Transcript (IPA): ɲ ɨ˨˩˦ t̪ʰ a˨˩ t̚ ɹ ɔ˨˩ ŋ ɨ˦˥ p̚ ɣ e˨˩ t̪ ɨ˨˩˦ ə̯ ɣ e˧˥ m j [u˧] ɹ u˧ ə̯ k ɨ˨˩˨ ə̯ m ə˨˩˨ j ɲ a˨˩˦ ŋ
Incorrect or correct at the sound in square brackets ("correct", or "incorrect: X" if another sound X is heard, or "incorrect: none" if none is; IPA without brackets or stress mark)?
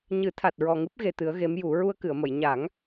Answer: incorrect: u˨˩˦